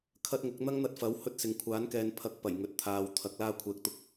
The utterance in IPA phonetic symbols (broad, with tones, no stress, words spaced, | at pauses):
kʰɐ˥t̚ŋʊ˨˥k̚ n̪ɐ˥ŋn̪ɐ˧t̚fɐ˨˥w hɵ˥t̚sɪ˨ŋ kʷʰaː˨˥nkɛː˨˧npʰɐ˨˥k̚ pɐ˨˩jŋɵ˨t̚t̪ʰaː˨˧w t̪ʰɐ˨˥k̚laː˥ kʷʰɛː˨k̚t̪ʊ˥k̚